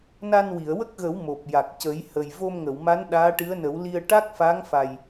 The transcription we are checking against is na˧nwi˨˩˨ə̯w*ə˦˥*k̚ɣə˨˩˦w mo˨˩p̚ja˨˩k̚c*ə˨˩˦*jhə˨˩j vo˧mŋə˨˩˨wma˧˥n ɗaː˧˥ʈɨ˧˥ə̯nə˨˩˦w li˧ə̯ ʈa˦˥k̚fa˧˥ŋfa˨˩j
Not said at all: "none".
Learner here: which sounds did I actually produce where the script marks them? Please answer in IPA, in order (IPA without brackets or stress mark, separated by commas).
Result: ə˦˥, ə˨˩˦